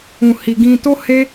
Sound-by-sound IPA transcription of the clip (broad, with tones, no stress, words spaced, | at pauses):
ũ˧hi˧ ɡĩ˧to˦he˦